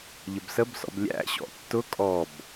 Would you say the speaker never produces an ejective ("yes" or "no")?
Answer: no